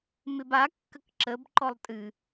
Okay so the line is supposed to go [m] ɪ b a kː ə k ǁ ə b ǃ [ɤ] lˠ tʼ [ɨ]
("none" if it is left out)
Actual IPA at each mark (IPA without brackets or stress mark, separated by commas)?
m, ɔ, ɨ